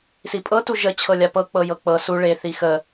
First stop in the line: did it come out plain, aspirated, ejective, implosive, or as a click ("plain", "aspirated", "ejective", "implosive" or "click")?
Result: ejective